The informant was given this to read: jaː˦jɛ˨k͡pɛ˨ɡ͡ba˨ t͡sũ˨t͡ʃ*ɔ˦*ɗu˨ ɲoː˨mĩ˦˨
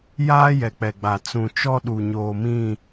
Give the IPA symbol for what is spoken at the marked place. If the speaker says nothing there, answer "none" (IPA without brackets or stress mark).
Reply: ɔ˦